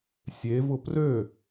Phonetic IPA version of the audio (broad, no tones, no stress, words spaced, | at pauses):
sʲevʊ prø